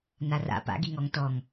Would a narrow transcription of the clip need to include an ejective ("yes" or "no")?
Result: no